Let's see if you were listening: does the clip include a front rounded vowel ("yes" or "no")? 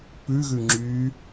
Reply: yes